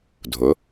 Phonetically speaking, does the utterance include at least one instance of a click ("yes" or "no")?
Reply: no